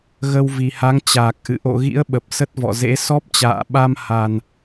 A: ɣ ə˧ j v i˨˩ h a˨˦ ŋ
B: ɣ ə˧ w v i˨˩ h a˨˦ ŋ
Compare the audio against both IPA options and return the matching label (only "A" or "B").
B